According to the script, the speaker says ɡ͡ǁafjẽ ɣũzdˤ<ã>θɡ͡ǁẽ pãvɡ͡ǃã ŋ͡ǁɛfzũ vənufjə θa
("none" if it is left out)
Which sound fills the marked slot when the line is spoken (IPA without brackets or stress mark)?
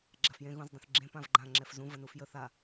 ə̃